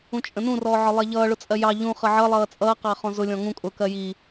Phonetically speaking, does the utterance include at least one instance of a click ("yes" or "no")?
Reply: no